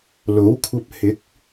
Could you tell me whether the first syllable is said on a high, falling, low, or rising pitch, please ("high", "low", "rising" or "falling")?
rising